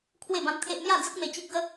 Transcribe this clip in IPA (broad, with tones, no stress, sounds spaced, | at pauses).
kʰ w e˥˧ b ã˦ m t̪ʰ e˦ ʔ m j a˥˧ d͡z ə˦ k̚ m e˧ t͡ɕ i˦ k̚ ɡ ə˦